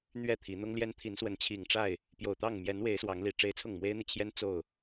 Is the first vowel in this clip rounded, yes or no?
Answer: no